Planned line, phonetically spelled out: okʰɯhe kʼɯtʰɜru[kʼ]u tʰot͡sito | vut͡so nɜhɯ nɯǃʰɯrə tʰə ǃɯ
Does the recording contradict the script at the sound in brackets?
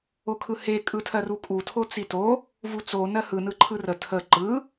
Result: no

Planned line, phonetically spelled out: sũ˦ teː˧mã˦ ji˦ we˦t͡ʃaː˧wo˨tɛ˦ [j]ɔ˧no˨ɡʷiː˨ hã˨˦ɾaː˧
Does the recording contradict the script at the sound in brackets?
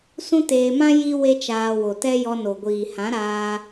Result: no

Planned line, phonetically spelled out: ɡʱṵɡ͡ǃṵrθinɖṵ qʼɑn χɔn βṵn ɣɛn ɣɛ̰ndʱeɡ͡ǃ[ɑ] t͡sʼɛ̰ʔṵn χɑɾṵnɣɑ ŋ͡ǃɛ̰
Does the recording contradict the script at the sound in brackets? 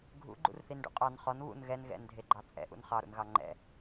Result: no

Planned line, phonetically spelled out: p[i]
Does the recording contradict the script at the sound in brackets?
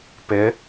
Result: yes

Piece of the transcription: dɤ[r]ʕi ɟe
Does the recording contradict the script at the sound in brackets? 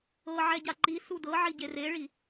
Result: yes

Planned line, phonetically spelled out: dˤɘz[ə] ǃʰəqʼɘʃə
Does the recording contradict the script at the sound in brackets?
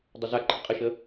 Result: yes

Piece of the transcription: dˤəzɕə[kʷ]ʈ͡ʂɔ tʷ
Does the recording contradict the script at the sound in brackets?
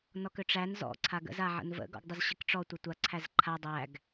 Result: yes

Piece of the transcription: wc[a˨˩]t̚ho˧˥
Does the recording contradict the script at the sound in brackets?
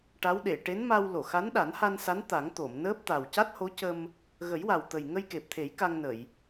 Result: yes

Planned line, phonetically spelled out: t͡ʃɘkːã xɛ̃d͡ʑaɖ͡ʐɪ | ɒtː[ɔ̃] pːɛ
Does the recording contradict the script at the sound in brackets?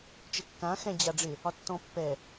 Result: no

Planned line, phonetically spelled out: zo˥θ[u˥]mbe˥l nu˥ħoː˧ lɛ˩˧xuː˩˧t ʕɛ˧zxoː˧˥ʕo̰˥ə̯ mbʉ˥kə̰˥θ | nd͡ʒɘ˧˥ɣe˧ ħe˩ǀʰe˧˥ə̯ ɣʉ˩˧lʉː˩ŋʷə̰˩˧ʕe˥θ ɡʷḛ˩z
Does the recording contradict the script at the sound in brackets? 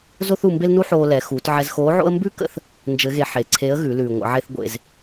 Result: yes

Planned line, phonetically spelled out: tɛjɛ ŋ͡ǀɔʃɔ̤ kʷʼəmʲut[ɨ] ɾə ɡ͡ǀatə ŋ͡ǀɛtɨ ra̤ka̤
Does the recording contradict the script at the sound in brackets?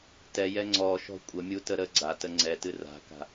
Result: yes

